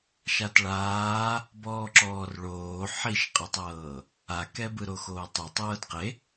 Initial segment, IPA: ʃ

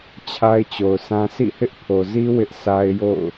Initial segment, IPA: t͡ɕʰ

